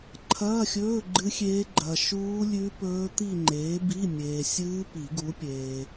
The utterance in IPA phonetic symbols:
ǃʰ ɐː˧˥˧ xʲ ɵː˧˥˧ ɡ͡ǃ ɨ˦˥ xʲ eː˦˥ ɡ͡ǃ ɐ˨ ʃ uː˦˥ lʲ ʉ˦˥ p ɵː˦˥ t̪ i˥˧ ŋ͡ǃ eː˨˥ b i˧˥˧ mʲ eː˨ sʲ ɨː˦˥ p i˨˩˦ ɡ u˨˥ pʲ eː˨

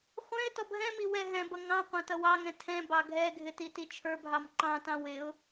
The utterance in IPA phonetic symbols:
χʷ ɛ̃ ɪ̯ t ɔ b ɦ ɛ̃ m i w ɛ ɦ ɛ̃ b ʌ ŋ ɑ̃ qʷ ɑ̃ t ʌ w ɑ ŋ ɛ̃ tʰ ɛ̃ b ɑ ɡʱ ɛ ɡʱ ɪ t i t i t͡ʃʰ ə˞ b ɦ ɑ m ǃ ɑ̃ t ɑ̃ w ɪ ʊ̯

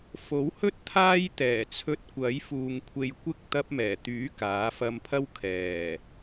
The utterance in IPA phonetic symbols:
f o˨˥ w h ɵ˥ t̚ t̪ʰ aː˥ j t̪ ɛː˨˩ t͡sʰ ɵ˧ t̚ kʷ ɐ˨˥ j f uː˨ ŋ kʷʰ e˧ j kʷ ɪ˥ k̚ t̪ ɐ˧ p̚ m ɛː˨˩ t̪ yː˨˥ k aː˨˥ f ɐ˧ m pʰ ɐ˥ w kʰ ɛː˨˩

